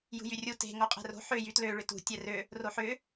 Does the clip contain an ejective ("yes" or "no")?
yes